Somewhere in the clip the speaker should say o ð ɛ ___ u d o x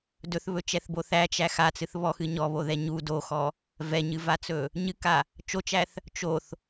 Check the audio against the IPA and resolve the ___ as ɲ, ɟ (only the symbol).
ɲ